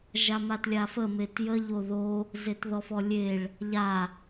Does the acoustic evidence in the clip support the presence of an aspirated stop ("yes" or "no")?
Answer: no